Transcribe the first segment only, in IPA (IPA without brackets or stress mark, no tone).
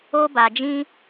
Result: o